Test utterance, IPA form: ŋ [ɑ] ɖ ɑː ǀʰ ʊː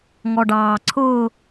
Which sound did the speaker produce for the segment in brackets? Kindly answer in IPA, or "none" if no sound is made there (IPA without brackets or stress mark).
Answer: ɔ